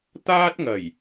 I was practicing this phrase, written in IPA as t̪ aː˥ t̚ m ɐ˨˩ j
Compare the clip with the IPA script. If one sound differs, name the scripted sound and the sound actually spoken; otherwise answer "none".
m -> ŋ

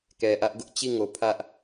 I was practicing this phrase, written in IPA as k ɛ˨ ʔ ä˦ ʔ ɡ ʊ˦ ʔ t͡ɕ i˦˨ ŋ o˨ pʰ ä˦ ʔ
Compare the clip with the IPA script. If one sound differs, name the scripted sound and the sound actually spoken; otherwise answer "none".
none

